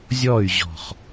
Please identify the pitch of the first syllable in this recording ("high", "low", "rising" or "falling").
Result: falling